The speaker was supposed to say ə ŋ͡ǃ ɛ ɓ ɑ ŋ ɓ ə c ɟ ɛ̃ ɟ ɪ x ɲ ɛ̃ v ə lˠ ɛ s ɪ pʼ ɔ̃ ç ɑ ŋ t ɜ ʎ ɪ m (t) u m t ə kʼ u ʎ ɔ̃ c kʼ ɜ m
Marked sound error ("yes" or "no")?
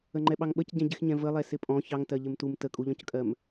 no